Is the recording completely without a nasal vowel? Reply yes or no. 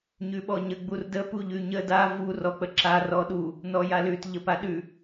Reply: yes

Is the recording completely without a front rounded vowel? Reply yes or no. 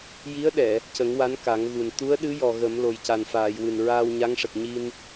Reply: yes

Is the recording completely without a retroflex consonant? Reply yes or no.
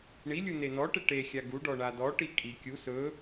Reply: no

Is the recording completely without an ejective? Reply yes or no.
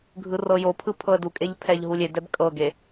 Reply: no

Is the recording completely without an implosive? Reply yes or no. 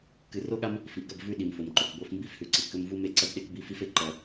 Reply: no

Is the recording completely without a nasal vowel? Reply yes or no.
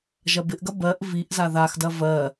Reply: yes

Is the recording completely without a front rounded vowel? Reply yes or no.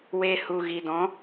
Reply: yes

